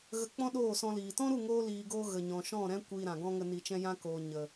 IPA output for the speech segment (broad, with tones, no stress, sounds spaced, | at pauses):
ɣ ə˧ k͡p ɔ̃˦ ɗ oː˦˨ s ɔ̃˧ l iː˨ t ɔ̃˦ ɾ u˦˨ ŋ oː˧ l iː˧ ɡ oː˦ ɣ ə˨ ɲ ɔ̃˨ ʃ ɔ̃˦˨ ɾ ɛ̃˦ kʷ iː˧ ɾ ã˨ ɡ ɔ̃˦ ŋ ə˧ n i˧ t͡ʃ ɛ̃˦ j ã˧ k oː˨ ɲ ə˨